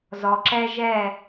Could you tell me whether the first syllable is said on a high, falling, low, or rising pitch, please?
low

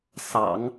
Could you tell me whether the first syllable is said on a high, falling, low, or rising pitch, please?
low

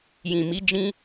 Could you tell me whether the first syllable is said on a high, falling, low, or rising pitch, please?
low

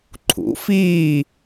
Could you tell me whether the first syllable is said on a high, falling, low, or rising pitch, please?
rising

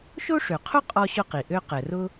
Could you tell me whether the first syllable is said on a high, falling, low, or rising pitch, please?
high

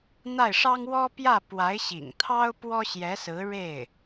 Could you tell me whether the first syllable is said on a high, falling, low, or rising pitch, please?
falling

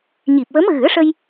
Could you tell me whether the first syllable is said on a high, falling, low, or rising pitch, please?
low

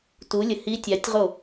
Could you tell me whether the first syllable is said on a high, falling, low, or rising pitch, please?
rising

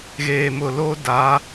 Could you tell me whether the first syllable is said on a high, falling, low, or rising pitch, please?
low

